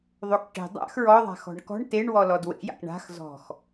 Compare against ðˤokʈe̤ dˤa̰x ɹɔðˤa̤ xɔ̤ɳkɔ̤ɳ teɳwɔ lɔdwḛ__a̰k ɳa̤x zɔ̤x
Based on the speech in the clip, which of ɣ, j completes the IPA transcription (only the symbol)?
j